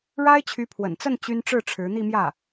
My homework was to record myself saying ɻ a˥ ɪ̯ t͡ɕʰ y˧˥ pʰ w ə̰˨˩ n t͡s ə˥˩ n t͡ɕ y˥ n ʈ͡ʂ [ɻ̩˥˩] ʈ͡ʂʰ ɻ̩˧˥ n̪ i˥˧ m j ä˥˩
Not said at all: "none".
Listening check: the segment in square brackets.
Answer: ɻ̩˥˩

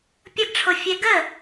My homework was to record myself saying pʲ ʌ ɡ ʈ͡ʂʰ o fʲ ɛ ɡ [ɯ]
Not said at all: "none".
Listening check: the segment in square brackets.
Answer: ə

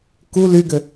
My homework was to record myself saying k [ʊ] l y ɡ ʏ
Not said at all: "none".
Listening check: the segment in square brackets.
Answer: u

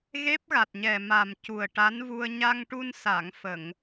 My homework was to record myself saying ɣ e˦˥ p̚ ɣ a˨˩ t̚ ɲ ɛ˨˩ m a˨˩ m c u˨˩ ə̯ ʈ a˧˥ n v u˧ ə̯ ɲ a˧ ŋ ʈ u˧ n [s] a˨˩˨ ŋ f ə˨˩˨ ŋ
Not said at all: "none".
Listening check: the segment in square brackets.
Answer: s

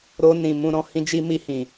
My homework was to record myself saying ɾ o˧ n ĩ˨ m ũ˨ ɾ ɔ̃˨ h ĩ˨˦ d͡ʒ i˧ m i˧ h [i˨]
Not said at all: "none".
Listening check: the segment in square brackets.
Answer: ĩ˨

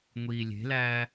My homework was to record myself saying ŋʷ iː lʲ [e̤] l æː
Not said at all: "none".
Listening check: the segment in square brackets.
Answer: e̤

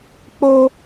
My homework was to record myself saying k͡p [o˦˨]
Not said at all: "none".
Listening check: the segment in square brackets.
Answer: o˦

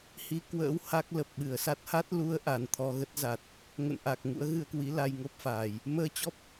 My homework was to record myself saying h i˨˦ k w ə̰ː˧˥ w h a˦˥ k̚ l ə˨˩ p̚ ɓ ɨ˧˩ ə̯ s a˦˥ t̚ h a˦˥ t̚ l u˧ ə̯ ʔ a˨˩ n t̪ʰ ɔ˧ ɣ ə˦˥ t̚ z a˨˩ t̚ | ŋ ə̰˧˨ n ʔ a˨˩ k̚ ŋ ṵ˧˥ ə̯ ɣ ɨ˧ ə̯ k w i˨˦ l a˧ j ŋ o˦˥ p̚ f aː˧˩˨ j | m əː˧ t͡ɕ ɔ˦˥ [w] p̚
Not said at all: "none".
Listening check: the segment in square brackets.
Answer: none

